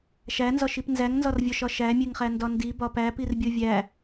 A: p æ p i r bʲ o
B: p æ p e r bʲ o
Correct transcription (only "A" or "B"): A